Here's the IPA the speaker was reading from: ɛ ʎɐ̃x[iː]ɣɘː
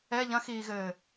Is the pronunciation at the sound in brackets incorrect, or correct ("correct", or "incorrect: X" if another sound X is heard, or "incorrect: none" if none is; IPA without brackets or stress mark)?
correct